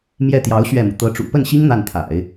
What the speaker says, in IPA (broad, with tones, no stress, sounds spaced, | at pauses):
m j ɛ˥˩ t̪ j ɑ˧˥ ʊ̯ ɕ ɥ ɛ˥˩ m u˩ t̪ ɤ˧˥ ʈ͡ʂ ṵ˨˩ p ə˥˩ n ɕ i˥ ŋ n̪ a˥˩ n t̪ʰ a̰˨˩˦ ɪ̯